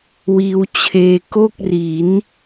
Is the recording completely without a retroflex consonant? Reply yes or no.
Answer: yes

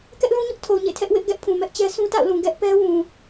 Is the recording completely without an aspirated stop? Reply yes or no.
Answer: no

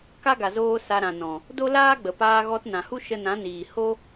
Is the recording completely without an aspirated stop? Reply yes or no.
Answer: yes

